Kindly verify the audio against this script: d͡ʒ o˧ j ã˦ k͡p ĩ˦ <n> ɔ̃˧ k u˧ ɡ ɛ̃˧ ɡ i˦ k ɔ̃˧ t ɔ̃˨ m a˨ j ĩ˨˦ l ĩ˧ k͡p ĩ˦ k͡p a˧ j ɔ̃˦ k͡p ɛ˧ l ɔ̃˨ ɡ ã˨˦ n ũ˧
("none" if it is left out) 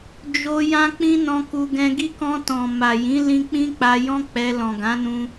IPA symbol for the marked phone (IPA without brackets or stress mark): n